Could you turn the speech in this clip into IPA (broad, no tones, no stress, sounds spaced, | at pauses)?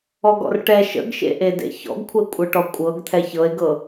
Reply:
ɔ ɡ ɔ̰ r ʈ ɛ ʃ ə̰ ɡ ʃ ḛ ʔ e d ḛ ç ɔ̰ ɡ kʷʰ ɛ kʷʼ ɤ ʈ ɔ kʷʼ ɤ ɡ t̪ʰ ɛ ç ɤ e̯ ɡ ɤ